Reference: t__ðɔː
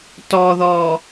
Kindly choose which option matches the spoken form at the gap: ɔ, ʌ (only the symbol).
ɔ